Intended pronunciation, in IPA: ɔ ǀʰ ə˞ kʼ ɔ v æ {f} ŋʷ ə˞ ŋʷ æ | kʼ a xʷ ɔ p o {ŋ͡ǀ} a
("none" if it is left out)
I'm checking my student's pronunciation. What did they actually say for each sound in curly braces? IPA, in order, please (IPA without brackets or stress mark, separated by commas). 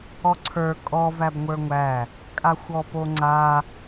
b, ŋ͡ǀ